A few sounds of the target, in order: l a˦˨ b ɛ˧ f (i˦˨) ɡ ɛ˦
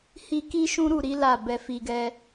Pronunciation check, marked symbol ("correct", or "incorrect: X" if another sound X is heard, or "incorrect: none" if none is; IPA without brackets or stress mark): incorrect: i˧